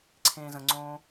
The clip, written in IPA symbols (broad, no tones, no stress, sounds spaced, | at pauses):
ǀʰ ẽː z ə̃ ŋ͡ǀ õː